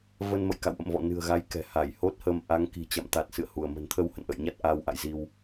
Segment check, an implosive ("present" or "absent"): absent